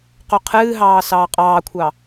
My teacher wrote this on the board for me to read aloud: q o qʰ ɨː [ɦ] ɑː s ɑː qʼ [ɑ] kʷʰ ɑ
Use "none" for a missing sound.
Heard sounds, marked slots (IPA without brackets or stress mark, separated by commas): ɦ, ɑː